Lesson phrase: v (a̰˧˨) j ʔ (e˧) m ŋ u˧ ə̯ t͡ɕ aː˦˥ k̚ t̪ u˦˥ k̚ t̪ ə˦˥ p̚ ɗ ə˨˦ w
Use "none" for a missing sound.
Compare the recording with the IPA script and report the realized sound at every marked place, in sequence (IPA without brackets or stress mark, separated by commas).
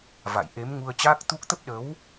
a̰˧˨, e˨˦